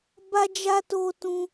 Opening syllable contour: high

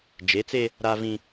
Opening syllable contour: rising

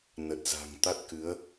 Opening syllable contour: low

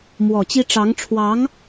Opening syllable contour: low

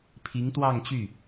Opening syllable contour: rising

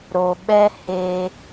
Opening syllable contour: low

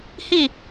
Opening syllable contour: falling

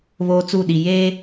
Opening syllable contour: high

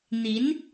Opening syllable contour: rising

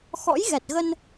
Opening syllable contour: rising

